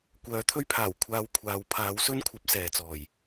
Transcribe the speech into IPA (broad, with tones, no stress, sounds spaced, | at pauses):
kʷ œː˨˥ t̪ʰ ɵ˥ ɥ pʰ aː˨˩ w kʷʰ aː˧ w kʷʰ aː˨˧ w pʰ aː˨˥ w s ɵ˥ n kʷʰ ɐ˨˥ p̚ s ɛː˨ t͡s ɔː˨˩ j